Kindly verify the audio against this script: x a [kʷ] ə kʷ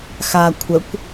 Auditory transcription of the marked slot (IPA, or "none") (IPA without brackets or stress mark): kʷʰ